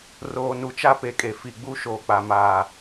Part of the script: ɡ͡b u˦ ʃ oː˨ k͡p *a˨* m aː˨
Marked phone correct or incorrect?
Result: correct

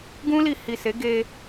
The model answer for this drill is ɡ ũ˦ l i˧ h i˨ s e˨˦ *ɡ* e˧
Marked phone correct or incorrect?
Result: correct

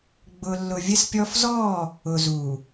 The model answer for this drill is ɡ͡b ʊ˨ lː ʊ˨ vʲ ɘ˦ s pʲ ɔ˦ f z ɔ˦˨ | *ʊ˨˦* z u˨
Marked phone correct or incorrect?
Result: incorrect: ʊ˨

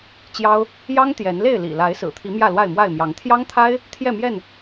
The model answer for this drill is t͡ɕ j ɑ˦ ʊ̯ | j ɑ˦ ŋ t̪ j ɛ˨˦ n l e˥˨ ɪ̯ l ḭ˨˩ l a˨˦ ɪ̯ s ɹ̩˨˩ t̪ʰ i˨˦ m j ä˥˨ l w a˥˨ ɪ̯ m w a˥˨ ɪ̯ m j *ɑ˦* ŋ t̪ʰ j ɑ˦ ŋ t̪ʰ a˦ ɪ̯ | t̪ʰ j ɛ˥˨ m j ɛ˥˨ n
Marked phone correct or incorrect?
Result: incorrect: ɑ˨˦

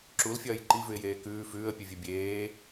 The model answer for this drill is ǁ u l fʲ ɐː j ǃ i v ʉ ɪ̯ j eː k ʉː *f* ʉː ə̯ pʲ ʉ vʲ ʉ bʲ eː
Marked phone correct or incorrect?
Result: correct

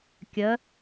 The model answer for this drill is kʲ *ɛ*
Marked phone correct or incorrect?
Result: incorrect: ɜ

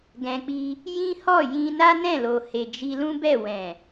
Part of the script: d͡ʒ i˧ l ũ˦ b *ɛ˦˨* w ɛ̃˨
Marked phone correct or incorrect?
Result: correct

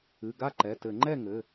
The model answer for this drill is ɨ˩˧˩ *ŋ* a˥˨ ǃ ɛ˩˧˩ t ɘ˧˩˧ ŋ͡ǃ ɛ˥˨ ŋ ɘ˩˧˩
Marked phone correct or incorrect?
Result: incorrect: ɡ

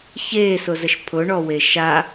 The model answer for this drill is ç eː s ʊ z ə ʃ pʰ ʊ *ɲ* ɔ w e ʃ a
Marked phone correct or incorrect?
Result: incorrect: ɳ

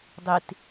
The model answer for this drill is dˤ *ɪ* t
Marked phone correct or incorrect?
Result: incorrect: i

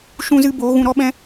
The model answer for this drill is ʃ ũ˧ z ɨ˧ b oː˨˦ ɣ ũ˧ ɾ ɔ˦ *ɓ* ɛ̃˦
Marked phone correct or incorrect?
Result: correct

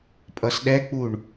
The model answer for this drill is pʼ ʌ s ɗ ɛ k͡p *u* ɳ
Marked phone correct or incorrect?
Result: correct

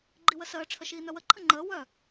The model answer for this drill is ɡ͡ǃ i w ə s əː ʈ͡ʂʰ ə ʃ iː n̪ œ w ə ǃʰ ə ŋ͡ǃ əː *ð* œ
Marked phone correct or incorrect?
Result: incorrect: w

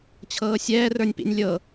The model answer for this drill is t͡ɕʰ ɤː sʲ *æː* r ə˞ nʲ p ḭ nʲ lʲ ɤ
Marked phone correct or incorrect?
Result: incorrect: ɛː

